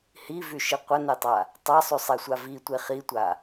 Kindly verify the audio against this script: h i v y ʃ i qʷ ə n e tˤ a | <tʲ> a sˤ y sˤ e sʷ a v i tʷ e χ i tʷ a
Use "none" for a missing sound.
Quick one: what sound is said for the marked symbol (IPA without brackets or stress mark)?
tˤ